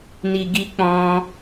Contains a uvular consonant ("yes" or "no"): no